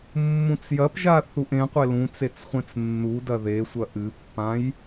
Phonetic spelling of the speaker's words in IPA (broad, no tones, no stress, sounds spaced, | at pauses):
mː ũ t͡s j ɐ p ʒ a θ u ʔ ẽ qʷ e l ũ t͡s e t͡s χʷ ẽ t͡s nː u d ɐ ð e sʷ ɐ ʔ ɨ pː ã j